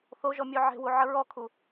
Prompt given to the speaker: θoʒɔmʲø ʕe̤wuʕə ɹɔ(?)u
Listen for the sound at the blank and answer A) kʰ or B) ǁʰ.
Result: A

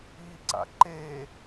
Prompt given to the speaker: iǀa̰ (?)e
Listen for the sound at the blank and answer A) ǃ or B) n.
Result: A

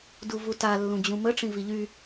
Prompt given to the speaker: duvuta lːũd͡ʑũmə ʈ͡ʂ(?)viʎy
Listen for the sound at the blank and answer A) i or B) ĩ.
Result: B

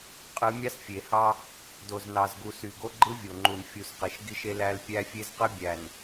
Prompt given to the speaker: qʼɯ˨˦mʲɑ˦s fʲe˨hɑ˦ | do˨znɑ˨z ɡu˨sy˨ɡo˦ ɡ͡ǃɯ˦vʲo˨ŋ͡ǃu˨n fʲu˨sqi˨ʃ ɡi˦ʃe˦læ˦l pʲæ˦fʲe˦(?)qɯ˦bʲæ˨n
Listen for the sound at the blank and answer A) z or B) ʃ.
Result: A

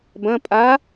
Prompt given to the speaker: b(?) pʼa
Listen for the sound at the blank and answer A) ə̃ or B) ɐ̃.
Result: B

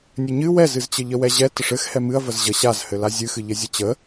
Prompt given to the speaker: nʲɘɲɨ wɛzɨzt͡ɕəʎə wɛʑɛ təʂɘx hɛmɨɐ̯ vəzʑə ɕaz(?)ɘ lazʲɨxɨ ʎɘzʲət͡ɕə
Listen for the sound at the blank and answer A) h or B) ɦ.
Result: A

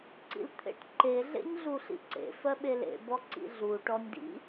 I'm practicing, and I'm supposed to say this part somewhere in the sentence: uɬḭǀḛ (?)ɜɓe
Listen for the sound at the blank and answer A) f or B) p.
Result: A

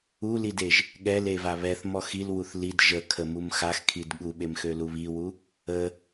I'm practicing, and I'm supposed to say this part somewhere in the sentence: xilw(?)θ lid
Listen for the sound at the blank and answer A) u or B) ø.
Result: A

